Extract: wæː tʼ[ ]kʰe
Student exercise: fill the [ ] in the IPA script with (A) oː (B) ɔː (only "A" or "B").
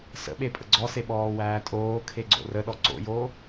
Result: A